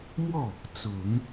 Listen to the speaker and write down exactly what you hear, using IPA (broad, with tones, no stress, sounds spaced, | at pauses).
m w ɔ˥˩ | t͡s ʊ˨˩˦ ŋ